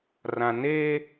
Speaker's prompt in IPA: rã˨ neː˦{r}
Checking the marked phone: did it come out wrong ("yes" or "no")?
yes